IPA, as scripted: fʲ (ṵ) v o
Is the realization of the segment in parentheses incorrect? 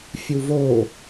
yes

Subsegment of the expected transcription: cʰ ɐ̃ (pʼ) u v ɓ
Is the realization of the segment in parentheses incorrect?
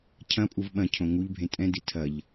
no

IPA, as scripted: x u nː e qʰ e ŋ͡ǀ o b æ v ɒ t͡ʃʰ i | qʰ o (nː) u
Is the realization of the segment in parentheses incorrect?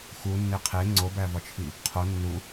no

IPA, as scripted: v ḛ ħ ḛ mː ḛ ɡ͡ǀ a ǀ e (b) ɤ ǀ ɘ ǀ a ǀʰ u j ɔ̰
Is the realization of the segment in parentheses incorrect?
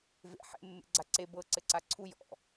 no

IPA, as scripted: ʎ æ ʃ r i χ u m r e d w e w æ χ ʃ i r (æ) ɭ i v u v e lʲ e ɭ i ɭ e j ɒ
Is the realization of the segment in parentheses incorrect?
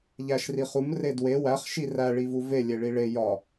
no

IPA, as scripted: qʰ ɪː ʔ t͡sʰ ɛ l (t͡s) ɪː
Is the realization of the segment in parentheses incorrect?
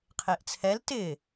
yes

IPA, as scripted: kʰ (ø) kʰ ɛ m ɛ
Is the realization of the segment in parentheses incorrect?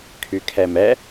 yes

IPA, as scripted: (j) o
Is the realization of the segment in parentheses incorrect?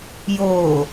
no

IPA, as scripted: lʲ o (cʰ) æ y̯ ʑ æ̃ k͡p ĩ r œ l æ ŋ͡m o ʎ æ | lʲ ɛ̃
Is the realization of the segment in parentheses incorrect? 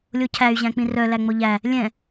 no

